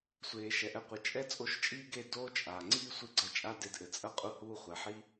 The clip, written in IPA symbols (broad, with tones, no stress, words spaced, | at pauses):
sʷeː˨ʃɛ˨ʔɛ˧ qʷɨ˨t͡ʃʼɛ˦ t͡sʼo˧ʃt͡ʃʼiː˦ ɡe˦˨doː˦t͡ʃʼaː˨ ŋ͡ǀiː˦sʷɨ˧ɡ͡ǀɐ˧ t͡ʃʼa˦de˧dʔɘ˨ t͡sʼɐ˦qʼu˧huː˧χʷɛ˨ ħi˦